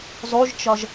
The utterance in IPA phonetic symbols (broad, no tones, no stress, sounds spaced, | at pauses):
zˤ u ʒ t͡ʃ ɒ ʒ